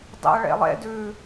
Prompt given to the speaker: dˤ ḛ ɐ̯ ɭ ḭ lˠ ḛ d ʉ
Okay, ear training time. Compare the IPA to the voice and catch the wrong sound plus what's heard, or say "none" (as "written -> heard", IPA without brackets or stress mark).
ḭ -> ḛ